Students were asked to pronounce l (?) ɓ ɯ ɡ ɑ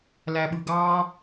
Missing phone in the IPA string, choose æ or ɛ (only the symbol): æ